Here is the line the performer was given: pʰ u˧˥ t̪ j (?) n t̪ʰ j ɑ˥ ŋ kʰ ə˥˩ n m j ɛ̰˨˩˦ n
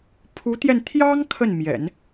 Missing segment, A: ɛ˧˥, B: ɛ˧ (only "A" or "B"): B